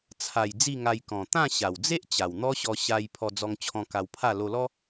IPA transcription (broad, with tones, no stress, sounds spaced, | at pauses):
t͡sʰ a˨˩ j d͡z i˥˧ ŋ a˧ j k ɔ̃˨˩ t̪ ã˥˧ ɕ a˨˩ w d͡z e˦ ʔ t͡ɕ a˨˩ w n̪ ɔ˦ ɕ ɔ˧ ɕ a˧ j pʰ ɔ˧ d͡z ɔ˧ ŋ t͡ɕʰ ɔ̃˧ k a˧ w pʰ a˥˧ l o˧ l ɔ˦